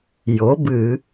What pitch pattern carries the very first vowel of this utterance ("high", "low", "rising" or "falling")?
rising